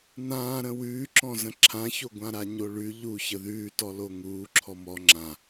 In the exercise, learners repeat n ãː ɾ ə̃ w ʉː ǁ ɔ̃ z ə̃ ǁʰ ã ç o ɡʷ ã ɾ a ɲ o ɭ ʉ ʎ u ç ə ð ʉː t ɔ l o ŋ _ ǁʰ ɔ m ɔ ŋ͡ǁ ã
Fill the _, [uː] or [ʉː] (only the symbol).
uː